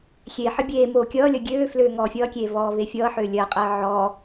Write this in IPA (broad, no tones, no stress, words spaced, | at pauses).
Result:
xʲeħə bʲeː moːkʲʌːlʲʌ ɡʲøː fløːŋɔːfʲʌːkʲeː vɔːvefʲʌːħøː lʲɜqʼɜ ʕɔ